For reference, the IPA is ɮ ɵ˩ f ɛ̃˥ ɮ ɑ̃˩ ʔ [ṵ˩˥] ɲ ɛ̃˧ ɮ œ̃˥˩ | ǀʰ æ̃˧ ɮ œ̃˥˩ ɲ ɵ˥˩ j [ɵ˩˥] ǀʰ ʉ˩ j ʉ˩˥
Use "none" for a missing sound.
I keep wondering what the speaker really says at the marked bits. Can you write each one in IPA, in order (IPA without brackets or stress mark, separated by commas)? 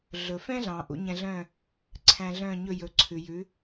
ṵ˩˥, ɵ˩˥